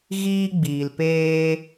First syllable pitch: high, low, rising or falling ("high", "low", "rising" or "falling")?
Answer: high